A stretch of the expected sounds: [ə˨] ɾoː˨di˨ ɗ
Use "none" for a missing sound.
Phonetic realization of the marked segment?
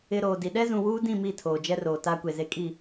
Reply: ɪ˨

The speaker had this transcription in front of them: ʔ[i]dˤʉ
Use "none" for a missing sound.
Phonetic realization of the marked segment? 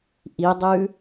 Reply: i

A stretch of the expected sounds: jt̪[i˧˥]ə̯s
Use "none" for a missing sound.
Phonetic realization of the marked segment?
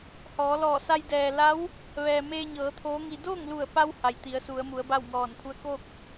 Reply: i˩˧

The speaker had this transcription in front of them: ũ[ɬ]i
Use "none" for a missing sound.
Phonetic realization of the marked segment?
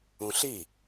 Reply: ɬ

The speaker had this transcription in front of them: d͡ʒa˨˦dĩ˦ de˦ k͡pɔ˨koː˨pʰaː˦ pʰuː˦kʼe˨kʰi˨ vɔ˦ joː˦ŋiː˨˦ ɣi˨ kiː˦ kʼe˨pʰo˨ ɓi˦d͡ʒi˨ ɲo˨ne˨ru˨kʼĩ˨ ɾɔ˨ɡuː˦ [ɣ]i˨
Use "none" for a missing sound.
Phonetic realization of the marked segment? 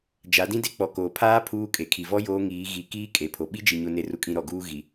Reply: ɣ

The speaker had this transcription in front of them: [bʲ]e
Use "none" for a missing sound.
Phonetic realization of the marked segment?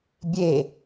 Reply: bʲ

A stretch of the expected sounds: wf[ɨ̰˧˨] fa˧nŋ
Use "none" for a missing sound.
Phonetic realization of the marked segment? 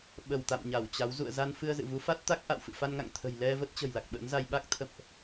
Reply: ɨ̰˧˨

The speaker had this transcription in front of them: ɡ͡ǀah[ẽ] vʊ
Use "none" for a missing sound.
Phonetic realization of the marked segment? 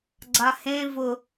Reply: ẽ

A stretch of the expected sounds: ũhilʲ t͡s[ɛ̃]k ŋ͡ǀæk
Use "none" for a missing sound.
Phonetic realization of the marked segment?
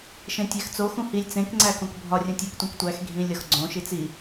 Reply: ẽ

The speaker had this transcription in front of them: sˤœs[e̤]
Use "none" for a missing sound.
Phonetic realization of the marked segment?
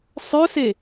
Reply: e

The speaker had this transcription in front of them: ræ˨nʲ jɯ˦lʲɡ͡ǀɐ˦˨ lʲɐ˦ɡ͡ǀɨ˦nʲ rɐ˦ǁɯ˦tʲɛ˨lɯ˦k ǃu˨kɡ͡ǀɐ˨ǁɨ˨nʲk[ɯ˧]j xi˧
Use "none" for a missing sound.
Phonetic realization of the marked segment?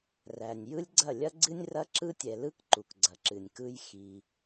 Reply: ɯ˦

